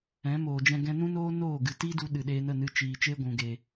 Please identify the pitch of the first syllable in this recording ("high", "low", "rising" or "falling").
rising